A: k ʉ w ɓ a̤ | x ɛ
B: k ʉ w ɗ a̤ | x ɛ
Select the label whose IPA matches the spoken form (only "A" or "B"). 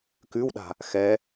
B